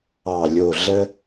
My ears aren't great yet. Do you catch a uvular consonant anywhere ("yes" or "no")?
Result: no